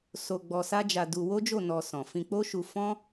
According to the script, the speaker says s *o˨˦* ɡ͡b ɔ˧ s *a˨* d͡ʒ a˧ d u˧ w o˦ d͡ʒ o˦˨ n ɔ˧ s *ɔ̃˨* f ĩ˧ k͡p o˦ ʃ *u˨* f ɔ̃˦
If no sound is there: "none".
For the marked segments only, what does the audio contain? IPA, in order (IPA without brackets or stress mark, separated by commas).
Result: o˧, a˦, ɔ̃˨, u˧